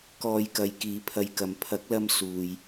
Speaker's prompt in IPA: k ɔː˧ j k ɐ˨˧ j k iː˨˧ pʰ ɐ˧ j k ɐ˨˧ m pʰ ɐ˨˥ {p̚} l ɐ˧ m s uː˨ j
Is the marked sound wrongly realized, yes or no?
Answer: yes